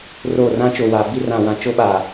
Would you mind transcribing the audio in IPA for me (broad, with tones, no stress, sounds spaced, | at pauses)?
r o˦˨ r ã˦ t͡ʃ o˨ w a˨ b i˦ r ã˨ w ã˨ t͡ʃ o˦ ɓ a˨